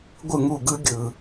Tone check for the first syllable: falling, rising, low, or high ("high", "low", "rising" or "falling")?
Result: falling